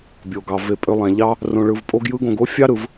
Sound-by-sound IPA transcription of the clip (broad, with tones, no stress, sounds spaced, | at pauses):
bʲ o˩ ɡ ɑ˩ v e˨ pʼ ø˨ lˠ æ̃˩ ʎ ɑ˦ | r õ˨ ɭ ɯ˨ v pʼ o˦ ɡ j ɯ˦ ɡ õ˨ ɡ o˥ fʲ ɑ˥ ɾ ɯ˩ v